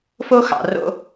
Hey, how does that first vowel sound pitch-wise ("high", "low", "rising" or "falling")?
high